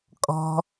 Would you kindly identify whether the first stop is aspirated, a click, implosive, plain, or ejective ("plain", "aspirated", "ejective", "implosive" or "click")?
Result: ejective